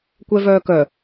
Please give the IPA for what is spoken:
kʷɛvœːkœ

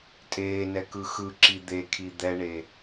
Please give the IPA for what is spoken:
tʼeːnɛ kɯxɯǁi d̪ekʰi d̪ɛɳe

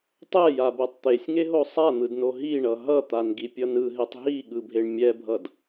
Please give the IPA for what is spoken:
tˤɛjabɛtˤ t̪esʲŋeɦo sˤan̪ɯdno ɦiɳʌ ɦʌt̪anɡipʲʌ nɯɦetˤ ɦiɠɯbʱeɳ mʲɛbʱʌd

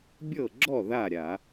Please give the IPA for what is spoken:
bʲɤ˥˩ɡ͡ǁɔ˥˩ ða˥˩ ɾʲa˧˩˧

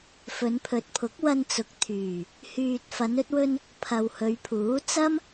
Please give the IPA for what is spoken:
fɵ˨˧npʰɵ˨t̚pʰʊ˨˥k̚ wɐ˧nt͡sʊ˨˥k̚t̪ʰyː˨˩ | hyː˨t̚ fɐ˨˧nɵ˧t̚wɵ˧n | pʰɐ˨whɵ˨˧ɥpʰuː˨˥ t͡sɐ˥m

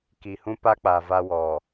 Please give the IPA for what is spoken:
ki˨hũ˦ pa˦k͡paː˨ va˦ wɔ˨

